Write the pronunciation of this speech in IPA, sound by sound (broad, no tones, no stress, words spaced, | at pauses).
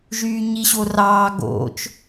ʒyːɲiɕorɑː ɡo̰t͡ʃ